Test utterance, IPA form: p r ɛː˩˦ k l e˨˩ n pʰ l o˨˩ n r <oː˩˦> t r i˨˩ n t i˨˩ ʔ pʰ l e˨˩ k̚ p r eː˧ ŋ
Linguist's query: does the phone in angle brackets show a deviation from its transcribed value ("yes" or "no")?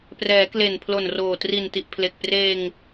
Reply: yes